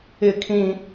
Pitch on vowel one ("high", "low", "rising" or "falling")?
high